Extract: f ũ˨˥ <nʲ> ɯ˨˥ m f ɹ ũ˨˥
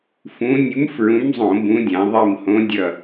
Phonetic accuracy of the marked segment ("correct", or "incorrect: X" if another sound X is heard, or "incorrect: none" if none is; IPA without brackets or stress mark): correct